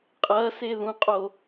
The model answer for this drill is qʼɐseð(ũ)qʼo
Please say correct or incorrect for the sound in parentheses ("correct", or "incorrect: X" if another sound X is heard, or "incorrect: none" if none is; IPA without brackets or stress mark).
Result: correct